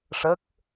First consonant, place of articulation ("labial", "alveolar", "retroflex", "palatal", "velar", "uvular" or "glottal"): retroflex